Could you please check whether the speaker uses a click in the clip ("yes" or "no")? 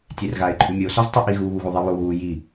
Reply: yes